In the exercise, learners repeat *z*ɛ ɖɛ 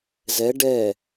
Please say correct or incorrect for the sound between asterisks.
correct